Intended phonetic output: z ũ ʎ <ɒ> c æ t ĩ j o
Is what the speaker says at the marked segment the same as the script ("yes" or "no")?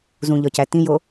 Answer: yes